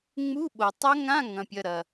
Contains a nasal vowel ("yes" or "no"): yes